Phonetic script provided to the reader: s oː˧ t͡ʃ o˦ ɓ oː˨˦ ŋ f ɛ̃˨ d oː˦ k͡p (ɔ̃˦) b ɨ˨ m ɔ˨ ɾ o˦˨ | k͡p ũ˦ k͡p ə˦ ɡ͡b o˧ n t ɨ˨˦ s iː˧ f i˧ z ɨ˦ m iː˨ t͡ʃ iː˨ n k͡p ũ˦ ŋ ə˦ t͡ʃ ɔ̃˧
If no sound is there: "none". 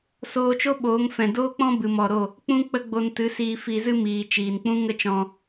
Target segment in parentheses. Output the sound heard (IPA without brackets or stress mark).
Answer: ɔ̃˦